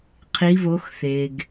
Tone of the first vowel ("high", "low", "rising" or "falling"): rising